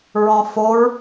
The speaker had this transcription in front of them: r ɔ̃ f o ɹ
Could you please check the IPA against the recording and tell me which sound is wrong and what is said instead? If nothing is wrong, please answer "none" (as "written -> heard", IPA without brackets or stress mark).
r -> ɹ